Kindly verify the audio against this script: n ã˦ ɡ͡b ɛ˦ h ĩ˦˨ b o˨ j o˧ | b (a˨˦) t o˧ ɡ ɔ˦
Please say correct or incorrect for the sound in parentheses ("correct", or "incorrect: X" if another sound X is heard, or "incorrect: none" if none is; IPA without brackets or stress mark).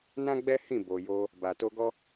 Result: incorrect: a˨